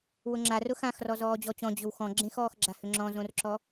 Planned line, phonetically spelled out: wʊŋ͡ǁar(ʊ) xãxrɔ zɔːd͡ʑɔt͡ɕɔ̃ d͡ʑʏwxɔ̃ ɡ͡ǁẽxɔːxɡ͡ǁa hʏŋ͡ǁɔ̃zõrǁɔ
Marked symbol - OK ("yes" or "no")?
yes